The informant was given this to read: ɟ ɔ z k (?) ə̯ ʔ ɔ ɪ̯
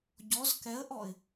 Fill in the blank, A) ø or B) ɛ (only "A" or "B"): B